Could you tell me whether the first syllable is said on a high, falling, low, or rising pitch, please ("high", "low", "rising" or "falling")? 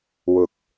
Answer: rising